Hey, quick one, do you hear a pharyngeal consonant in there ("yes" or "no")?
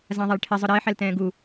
yes